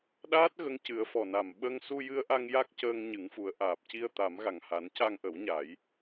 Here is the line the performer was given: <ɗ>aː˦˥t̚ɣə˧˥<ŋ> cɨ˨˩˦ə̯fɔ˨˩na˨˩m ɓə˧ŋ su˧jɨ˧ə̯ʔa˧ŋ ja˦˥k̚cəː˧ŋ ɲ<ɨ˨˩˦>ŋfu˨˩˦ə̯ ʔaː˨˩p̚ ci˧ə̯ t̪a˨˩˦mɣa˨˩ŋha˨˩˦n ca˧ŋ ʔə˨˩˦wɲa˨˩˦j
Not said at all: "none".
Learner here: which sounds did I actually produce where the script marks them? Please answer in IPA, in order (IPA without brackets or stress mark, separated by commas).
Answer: ɗ, ŋ, ɨ˨˩˦